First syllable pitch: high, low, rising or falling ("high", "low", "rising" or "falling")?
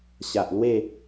low